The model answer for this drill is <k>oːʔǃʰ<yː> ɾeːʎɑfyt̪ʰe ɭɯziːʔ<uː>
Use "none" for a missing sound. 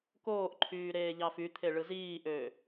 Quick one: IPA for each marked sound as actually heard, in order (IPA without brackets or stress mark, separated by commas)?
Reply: k, yː, øː